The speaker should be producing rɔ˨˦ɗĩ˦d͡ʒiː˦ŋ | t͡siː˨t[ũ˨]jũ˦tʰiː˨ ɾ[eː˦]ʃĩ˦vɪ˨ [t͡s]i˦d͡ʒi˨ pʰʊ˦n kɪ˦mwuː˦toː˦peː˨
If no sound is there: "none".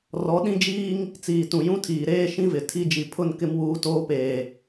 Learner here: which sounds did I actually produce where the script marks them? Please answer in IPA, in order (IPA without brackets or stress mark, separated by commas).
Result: ũ˨, eː˦, tʰ